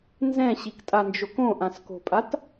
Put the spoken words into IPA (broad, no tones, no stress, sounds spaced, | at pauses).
n z ɛ̃ ɕ i k tʼ a n d͡ʒ o k õ ʔ ã s k o̤ pʼ a t